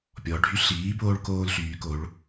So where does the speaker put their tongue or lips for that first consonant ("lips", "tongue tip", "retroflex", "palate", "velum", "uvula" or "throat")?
lips